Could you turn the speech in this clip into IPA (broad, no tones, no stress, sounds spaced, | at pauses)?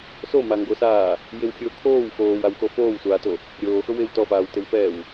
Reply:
s o m a ŋ ɡ o s aː | j ɪ w xʲ ʊː kʰ oː w x oː w a w x o f oː w sʷ aː t o | ɾʲ oː x ʊ w ɪ w t ɔ f aː w t ɪ w f ɛː w